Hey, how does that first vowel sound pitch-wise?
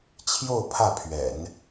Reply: falling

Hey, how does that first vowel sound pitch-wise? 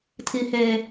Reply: high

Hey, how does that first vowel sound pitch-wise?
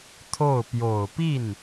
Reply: falling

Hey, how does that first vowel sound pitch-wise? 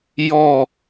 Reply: falling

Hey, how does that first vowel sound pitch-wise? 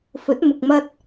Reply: rising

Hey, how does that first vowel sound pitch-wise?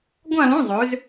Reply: falling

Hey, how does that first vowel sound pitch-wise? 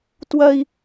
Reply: high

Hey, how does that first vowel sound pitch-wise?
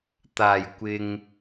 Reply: low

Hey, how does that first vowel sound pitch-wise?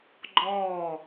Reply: falling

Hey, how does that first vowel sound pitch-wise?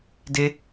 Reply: high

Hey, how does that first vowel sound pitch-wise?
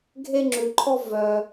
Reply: high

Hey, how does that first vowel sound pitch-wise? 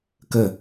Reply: falling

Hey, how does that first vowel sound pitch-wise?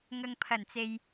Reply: low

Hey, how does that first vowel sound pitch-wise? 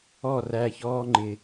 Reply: falling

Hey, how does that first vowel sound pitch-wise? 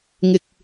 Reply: low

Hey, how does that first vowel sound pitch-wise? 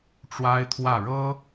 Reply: high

